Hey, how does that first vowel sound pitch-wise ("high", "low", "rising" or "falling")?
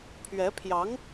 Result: rising